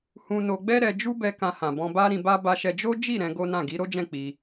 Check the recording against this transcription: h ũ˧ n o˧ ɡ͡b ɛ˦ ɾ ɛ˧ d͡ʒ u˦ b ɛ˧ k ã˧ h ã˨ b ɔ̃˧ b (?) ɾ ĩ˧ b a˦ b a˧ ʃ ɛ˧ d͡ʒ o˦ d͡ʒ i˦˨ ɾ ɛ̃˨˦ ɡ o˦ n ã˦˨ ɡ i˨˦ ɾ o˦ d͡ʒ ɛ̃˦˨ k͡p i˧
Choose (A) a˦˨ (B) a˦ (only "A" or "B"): B